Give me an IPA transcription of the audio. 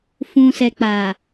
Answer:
f ũ˨ s ɛ˨ k͡p a˨

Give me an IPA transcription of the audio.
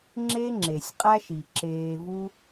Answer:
ŋ͡ǁ e˦ ŋ͡ǁ e˨ sʲ qʼ æ˦ ʃ i˨ ǁ eː˧ v u˦

